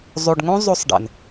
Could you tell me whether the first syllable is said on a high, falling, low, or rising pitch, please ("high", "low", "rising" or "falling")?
low